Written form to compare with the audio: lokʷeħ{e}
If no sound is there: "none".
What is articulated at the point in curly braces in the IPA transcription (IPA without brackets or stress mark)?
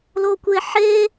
e